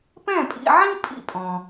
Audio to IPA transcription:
p ɛ̃˥˩ pʼ ḭ˧ ʕ ĩ˥ pʼ ḭ˥ pʼ ɔ̃˩

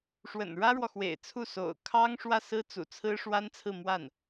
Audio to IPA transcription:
ʂ w ə̰˨˩ n ɻ ä˥ ɻ w ɔ˨ x w ḛ˨˩ ɪ̯ t͡sʰ u˥˩ s o̰˨˩ ʊ̯ kʰ ɑ˥ ŋ ʂ w ä˥˩ s ɹ̩˥ t͡s ṵ˨˩ t͡sʰ ɹ̩˥ ʂ w a˥ n t͡sʰ ɹ̩˥˧ m w a˥˩ n

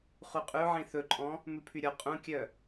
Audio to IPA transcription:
χ u qʼ ʉ ʕ ĩ θ ɵ ǃʼ ɔ̃ | m ʉ pʰ y ɾʲ ɔ qʼ ũ kʲ œ

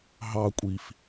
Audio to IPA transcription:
ɦ ɑ kʷʼ i f

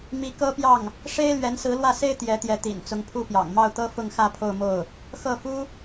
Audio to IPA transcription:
m i˧˥ k ɤ˥ p j ɑ˥˩ ŋ | ʂ e˥ ɪ̯ l ɥ ɛ˧˥ n s ɹ̩˧˥ l w ä˥˩ s e˥ ɪ̯ t̪ j ɛ˧˥ t̪ j ɛ˧˥ t̪ ḭ˨˩ n t͡s ʊ˧˥ ŋ pʰ u˥ p j ɑ̰˨˩ ŋ m ɑ˥˩ ʊ̯ t̪ ɤ˥ f ʊ˥˧ ŋ x ä˥˧ pʰ o˥˧ ʊ̯ m o˥˩ ʊ̯ | x ɤ˥˩ f u˥

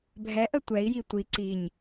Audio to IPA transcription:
bʱ ɛ ʔ ə tʷ ɛ i̯ j i tʷ i ǀ i ɲ

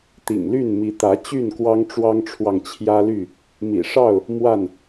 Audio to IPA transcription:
t̪ ḭ˨˩ ŋ l y˥˨ n m i˨˦ t̪ ä˨˦ t͡ɕ y˥˨ n k w ɑ˦ ŋ ʈ͡ʂ w ɑ˦ ŋ ʈ͡ʂʰ w ɑ˨ ŋ t͡ɕʰ j ä˦ l y˥˨ | m ḭ˨˩ ʂ ɑ˥˨ ʊ̯ | m w a˥˨ n

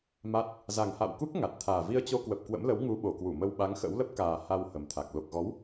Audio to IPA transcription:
m a˦˥ t̚ | z a˨˩ ŋ h a̰˧˨ w k u˦˥ k̚ ŋ a˨˩ t̚ t̪ʰ aː˨˩ v i˧ ə̯ t͡ɕ o˧ k w ə˨˩ p̚ k w ə̰˧˥ m l ə˨˦ w ŋ u˨˦ ɓ o˨˩ k w u˧˩ m ə˧ w ɓ a˨˦ ŋ x ə̰˧˥ w l ə˦˥ p̚ k aː˨˩ h a˧ w h ə˨˩ m t̪ʰ a˨˩ k̚ l o˨˩ k̚ ɣ ɔ˨˦ w

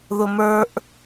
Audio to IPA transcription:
ð ʊ m ə˞ ʔ

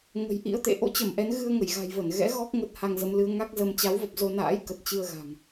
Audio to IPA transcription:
ŋ ə̤˨˩ j ʔ ḭ˧˥ ə̯ t̪ ḛ˧˨ ʔ o̰˧˥ t͡ɕ ə˧˩ m ʔ ɛ˨˦ n ɣ ɨ˧ ə̯ ŋ ə˧˩ j ɣ a̤˨˩ j v ə˧˩ n ɣ ɛ̰˧˥ ɣ ɔ˦˥ k̚ ŋ ə˦˥ t̚ h a˧ ŋ z ə˨˦ m l ɨ˨˦ ə̯ ŋ a˦˥ k̚ z ə˧ m t͡ɕ a˨˦ w v ə˨˩ p̚ z o˧ n a̰ː˧˥ j k ə˨˩ t̚ t͡ɕ ɨ˧ ə̯ ɣ a̤˨˩ ŋ

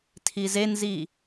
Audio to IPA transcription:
tʰ i z e n z i

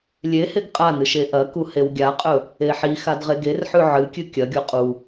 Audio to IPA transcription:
lʲ e h e ɡ qʼ a n ɨ ʃ e ʔ ɐ k u h e w ɡʲ a qʼ ɵ | e ħ i x a d ʁ e ɡ e r ħ ʉ ʕ ɨ kʲ ɨ kʲ ɐ ɡʲ o qʼ u

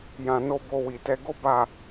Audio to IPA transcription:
j ã˧ n o˦ b o˧ w i˨ t ɛ˧ ɡ o˦ b a˦˨

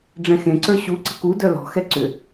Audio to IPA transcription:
ɖ͡ʐ ɛ̃ x ẽ ǀ ə˞ ɕ u ǀ ə̤ k u d œ l ɔ̤ x ɛ ǀ ʏ

